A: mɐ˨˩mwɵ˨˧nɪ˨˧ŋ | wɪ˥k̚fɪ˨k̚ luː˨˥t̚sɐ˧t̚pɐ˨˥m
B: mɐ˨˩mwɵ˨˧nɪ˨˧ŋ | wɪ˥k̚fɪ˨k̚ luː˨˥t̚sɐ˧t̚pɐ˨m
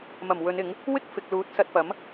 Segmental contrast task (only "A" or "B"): A